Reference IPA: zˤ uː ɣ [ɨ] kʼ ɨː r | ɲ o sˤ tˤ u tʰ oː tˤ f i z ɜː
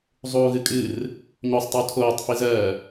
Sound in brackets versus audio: correct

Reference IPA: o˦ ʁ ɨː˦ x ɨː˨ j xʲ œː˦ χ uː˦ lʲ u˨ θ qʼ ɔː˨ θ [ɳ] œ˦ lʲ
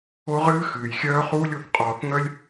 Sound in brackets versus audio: incorrect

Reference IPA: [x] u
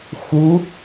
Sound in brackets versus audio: correct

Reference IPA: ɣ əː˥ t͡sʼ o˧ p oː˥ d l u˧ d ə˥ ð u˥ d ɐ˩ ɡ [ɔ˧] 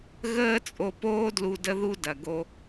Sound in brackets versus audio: incorrect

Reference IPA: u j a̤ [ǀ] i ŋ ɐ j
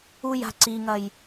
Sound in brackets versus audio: correct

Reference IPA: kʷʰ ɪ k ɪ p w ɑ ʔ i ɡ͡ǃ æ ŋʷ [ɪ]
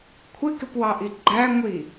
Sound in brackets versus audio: incorrect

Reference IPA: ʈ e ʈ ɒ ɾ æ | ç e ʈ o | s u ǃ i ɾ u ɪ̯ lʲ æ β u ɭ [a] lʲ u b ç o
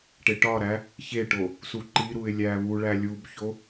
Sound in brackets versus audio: incorrect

